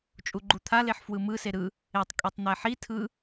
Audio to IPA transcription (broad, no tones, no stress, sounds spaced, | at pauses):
t͡ʃʼ u ɡ͡ǃ u t̪ʰ a l e ħ f w ɯ m ɯ s e ɾ ɯ | e tˤ kʼ i tˤ n̪ ɛ ħ i tʰ ɯ